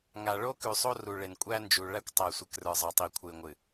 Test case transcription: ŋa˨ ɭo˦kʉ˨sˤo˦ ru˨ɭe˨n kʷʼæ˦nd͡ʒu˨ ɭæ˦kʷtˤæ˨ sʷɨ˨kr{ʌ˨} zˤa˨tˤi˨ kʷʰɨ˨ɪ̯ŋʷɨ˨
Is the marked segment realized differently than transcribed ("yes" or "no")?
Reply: yes